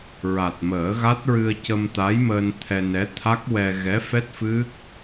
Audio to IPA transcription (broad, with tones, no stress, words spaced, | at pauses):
ɹa˨˩t̚məː˨˩˦ɣa˦˥t̚ɹɨ˧ə̯ cə˧mt̪a˧˥jməː˧n t̪ʰɛ˧nɛ˧˥ t̪ʰa˦˥k̚wɛ˧ ɣɛ˧˥fɛ˦˥t̚fɨ˦˥k̚